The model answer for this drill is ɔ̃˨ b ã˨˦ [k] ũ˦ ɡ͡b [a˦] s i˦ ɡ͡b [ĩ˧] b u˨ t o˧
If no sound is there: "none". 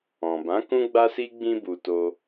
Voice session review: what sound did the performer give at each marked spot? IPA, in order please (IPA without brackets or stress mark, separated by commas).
k, a˦, ĩ˧